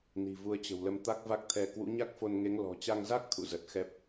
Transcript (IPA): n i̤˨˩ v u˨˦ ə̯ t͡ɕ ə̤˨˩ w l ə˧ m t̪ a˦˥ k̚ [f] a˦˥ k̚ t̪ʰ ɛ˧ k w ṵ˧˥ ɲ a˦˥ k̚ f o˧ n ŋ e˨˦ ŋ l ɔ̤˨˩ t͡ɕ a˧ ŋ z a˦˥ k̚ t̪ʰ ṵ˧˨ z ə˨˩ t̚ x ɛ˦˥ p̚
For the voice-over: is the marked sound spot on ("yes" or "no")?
no